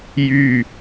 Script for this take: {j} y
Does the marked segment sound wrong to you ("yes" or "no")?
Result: no